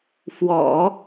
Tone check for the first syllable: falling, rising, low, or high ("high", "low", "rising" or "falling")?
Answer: low